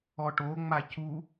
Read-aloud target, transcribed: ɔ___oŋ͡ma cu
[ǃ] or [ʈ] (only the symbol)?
ʈ